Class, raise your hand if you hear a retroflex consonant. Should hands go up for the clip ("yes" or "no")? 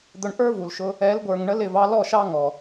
yes